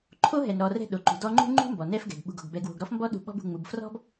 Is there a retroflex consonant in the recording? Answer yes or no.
no